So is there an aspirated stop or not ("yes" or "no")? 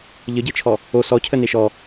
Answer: yes